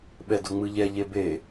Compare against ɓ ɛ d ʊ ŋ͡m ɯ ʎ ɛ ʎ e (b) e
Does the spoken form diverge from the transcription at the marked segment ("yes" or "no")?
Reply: no